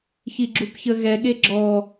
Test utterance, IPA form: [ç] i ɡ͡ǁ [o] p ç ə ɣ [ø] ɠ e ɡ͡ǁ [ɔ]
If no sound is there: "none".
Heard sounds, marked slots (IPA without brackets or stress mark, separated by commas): ç, u, ɛ, ɔ